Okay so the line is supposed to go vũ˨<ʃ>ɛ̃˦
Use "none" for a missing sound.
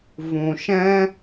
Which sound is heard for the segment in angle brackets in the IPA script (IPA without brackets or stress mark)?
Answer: ʃ